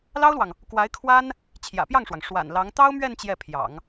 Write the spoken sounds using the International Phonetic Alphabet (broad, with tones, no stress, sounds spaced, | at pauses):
l ɑ˥ ʊ̯ l w ɑ˨ ŋ | k w a˧˥ ɪ̯ kʰ w a˥ n | t͡ɕʰ j ä̰˨˩ p j ɑ˥˩ ŋ ʂ w ɑ˩ ŋ ʂ w a̰˨˩ n l ɑ˧˥ ŋ t̪ ɑ˥ ʊ̯ m ɥ ɛ˥˧ n t͡ɕ j ɛ˥˩ pʰ j ɑ̰˨˩˦ ŋ